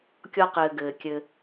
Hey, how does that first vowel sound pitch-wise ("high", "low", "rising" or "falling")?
low